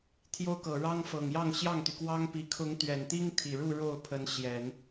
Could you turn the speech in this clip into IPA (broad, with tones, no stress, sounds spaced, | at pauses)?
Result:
t̪ʰ j o˥ ʊ̯ k ɤ˨˩ ɻ ɑ˥ ŋ f ɤ˨˩ ŋ j ɑ˥˧ ŋ ɕ j ɑ˥˩ ŋ t̪ y˩ k w ɑ˥ ŋ p i˨˩ kʰ ʊ˧˥ ŋ t̪ ɥ ɛ˨˩ n t̪ i˥ ŋ t̪ʰ i˨˩ ɻ u˥˧ ɻ o˥˩ ʊ̯ pʰ ə˧˥ n ɕ j ɛ˨˩˦ n